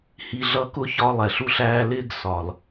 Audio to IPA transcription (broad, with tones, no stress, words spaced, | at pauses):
hi˨ɮʌ˧kʊ˦ çɒ˦lˠɛ˨ɬ u˧ɬæː˧ lɪː˦ɡsɒ˨l